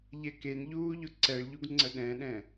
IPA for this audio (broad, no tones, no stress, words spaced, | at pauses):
ʎɛkenʎuː ʎʊǀɛɭʎuɡ ŋ͡ǀəɗɛ̃ɗɛ̃